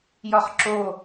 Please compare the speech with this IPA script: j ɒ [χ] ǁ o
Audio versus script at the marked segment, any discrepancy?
no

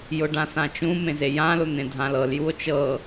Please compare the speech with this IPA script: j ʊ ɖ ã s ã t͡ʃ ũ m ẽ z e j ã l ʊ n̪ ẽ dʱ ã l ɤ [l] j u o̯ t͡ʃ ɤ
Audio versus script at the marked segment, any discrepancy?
no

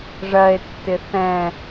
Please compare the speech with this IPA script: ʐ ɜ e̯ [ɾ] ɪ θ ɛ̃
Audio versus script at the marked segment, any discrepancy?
yes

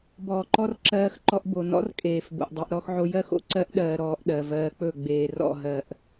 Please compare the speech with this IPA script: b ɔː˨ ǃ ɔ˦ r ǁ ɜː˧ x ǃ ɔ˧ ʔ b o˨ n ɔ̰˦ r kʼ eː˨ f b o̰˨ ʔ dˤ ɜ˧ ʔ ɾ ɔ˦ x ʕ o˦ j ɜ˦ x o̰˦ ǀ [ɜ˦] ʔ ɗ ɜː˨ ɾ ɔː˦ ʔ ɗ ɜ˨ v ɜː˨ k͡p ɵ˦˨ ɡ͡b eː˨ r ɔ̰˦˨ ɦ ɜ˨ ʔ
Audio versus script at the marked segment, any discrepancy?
no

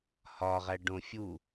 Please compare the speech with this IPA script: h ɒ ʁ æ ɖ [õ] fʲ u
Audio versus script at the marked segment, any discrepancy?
no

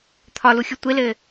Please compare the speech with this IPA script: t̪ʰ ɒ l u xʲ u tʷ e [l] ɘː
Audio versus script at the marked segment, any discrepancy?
no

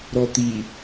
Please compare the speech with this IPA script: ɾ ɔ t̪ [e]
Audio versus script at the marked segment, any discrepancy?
yes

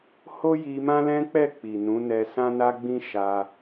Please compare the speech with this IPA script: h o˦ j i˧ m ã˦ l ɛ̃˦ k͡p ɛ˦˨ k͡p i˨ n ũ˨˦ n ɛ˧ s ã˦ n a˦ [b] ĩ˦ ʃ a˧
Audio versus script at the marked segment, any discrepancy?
yes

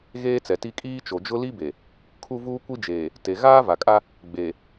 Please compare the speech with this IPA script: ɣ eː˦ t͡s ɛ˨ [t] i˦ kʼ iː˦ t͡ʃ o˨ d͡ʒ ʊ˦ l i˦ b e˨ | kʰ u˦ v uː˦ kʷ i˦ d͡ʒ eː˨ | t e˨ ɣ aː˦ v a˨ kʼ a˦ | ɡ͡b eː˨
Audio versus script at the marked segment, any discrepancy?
no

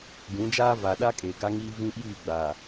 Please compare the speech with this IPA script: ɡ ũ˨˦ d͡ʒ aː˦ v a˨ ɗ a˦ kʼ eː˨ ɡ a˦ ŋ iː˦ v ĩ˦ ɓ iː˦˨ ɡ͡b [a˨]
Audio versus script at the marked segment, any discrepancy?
no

